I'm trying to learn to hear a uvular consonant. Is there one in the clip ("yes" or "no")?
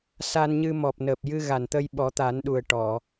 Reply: no